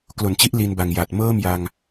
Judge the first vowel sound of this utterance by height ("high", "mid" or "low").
mid